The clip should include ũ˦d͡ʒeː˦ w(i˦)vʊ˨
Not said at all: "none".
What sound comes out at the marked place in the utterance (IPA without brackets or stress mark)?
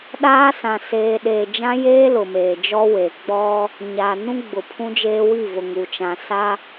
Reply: i˦˨